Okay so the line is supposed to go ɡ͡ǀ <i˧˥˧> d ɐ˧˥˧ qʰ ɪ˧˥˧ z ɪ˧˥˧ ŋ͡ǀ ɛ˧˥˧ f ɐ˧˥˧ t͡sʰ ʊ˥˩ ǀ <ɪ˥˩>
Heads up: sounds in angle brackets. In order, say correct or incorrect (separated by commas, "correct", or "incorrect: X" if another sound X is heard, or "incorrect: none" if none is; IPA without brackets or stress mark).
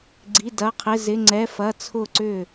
correct, incorrect: ʏ˥˩